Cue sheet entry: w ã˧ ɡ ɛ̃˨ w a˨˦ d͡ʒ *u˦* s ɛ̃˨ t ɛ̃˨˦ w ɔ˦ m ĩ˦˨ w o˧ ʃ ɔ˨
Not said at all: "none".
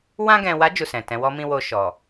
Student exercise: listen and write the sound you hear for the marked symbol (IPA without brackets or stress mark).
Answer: u˦˨